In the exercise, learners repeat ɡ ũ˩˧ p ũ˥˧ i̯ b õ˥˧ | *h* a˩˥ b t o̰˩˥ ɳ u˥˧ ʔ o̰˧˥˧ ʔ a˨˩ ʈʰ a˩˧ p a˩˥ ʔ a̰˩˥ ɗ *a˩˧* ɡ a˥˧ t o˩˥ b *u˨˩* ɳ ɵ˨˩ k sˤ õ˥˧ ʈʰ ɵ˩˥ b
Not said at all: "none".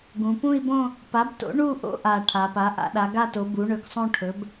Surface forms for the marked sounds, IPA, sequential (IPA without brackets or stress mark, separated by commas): p, a˩˥, u˩˥